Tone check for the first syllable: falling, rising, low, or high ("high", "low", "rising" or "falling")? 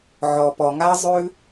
low